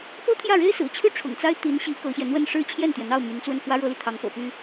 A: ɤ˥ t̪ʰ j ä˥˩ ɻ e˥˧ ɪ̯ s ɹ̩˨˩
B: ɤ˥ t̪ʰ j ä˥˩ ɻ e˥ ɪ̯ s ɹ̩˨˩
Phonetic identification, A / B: B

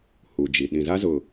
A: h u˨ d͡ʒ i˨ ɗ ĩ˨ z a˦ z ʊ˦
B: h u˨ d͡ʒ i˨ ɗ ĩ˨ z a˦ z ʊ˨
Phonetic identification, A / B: B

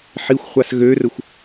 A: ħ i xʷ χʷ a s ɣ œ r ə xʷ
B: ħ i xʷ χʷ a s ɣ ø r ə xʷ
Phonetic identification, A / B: B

